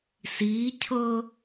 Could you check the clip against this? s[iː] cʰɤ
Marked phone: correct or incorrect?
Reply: correct